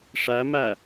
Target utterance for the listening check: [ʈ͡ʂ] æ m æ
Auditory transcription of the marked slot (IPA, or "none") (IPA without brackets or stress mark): ʂ